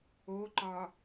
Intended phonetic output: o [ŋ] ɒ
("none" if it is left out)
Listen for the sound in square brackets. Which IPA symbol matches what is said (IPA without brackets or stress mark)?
ǃ